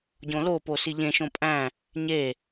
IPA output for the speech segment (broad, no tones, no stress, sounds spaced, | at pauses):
ɟ õ l o p o s i ʎ ẽ ʃ õ pʼ æ̃ | ɲ e